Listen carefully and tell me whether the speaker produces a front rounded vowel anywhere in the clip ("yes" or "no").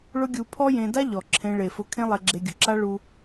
no